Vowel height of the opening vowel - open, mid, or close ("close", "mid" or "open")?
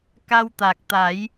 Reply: open